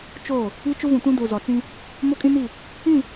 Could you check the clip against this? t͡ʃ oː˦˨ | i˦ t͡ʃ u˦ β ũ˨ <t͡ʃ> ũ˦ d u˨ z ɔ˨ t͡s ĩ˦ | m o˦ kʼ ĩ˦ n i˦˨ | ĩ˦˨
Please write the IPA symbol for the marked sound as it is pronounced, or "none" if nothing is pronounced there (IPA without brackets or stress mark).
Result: t